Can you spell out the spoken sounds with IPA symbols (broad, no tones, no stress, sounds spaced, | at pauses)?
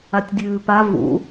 a tʲ dʲ ʉː p a v ṵ